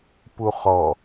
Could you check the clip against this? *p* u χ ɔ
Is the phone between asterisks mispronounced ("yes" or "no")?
no